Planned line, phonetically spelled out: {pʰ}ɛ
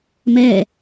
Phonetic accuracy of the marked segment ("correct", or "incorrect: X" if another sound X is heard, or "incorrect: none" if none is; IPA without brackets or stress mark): incorrect: m